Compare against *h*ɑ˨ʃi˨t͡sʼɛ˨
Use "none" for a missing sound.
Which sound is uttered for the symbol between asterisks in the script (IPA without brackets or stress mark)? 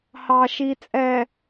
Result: h